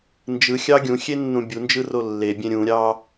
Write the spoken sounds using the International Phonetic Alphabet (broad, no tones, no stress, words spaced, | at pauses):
nd͡ʒɯxʲɑ ɡʲũxʲenːũ bʲund͡ʒɯro lːebʲẽ ɾʲũɾʲɑ